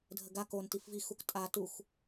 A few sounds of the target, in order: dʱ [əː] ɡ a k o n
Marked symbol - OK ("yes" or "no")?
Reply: no